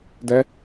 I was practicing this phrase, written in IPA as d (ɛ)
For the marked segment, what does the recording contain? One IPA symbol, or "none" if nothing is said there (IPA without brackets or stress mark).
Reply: ɛ